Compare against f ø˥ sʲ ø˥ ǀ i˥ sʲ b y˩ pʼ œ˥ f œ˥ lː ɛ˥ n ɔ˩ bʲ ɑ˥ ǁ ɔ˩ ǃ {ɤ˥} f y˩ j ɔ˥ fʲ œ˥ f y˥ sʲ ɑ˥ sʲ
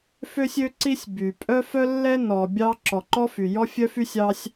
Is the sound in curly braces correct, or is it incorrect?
incorrect